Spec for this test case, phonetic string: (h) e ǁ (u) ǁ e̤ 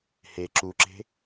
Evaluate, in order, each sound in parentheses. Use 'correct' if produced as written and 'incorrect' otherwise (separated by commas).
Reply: correct, correct